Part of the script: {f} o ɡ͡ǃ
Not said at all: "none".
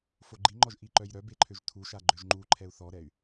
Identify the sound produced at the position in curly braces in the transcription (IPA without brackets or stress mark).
f